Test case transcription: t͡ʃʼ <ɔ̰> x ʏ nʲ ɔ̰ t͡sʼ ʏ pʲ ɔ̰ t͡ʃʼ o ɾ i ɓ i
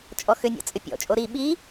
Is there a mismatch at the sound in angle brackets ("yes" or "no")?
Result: yes